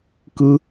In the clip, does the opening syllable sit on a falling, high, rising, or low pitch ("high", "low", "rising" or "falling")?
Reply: high